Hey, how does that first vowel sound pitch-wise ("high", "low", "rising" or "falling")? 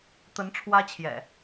rising